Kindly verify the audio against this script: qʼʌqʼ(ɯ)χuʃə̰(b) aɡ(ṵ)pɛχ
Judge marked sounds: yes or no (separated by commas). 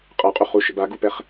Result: no, yes, no